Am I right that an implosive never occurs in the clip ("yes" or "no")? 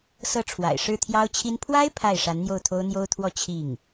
yes